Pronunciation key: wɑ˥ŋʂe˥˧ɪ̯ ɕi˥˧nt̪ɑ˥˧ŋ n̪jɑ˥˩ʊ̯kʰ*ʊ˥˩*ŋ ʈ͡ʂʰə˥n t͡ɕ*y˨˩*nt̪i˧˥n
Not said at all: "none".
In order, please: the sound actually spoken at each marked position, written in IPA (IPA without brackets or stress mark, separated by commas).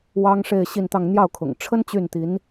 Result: ʊ̰˨˩, y˥˩